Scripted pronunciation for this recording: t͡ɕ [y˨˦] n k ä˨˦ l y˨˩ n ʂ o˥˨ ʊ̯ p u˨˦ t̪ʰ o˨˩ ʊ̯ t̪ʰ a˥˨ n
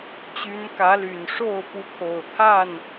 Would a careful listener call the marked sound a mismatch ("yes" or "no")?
no